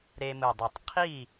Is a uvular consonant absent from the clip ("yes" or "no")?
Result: no